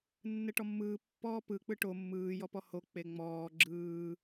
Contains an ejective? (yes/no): no